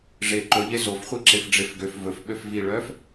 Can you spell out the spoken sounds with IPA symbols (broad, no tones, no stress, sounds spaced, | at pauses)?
ʐ e ǃ ɵ ʎ e z o f χʷ i ǁ e f ɖ͡ʐ e f ɡ ø f v ɵ f ɓ ø f v i ɭ œ f